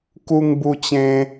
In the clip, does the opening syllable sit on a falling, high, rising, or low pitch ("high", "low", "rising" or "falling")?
high